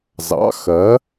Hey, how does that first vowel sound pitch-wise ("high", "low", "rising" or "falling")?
rising